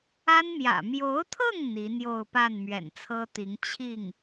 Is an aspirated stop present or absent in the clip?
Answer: present